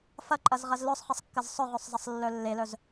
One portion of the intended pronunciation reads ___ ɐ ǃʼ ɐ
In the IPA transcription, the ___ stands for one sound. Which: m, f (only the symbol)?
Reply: f